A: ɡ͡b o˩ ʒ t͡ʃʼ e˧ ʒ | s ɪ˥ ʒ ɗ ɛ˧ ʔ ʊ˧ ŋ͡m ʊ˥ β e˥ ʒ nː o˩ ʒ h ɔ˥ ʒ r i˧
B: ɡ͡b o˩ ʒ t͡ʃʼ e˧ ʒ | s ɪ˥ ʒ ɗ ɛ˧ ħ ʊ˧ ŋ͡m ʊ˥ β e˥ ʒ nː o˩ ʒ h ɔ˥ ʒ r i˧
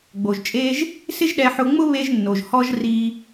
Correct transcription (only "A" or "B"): B